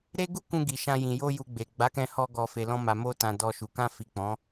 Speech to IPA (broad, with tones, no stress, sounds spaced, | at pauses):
ɾ e˦ ɡ u˦ k ũ˧ ɡ i˨ ʃ ã˧ j ĩ˨ j o˧ j u˨ ɡ͡b e˨ ɡ͡b a˨˦ k ɛ̃˧ h ɔ˧ ɡ ɔ˨ f e˨ l ɔ̃˧ m a˨ m o˧ t ã˨ d ɔ˧ ʃ u˨ k ã˧ f i˨ k͡p ɔ̃˨˦